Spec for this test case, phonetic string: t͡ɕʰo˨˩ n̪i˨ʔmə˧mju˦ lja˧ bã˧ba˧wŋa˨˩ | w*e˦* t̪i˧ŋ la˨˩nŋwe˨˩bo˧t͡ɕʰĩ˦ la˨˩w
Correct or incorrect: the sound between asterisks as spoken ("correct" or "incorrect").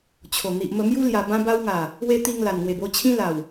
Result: incorrect